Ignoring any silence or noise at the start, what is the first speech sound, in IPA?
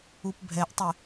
u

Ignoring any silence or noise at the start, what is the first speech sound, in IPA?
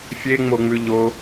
fʲ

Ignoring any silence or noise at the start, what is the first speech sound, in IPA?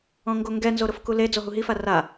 ɔ̃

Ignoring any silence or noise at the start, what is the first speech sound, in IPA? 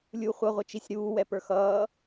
lʲ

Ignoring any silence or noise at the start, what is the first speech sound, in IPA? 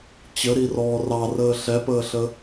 t͡ɕ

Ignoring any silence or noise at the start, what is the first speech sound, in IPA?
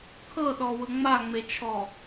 kʰ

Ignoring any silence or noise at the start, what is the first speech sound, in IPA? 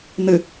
n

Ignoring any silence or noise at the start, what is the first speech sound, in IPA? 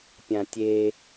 pʲ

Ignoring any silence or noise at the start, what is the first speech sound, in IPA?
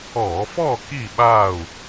ɔ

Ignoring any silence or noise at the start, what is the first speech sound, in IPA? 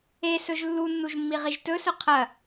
e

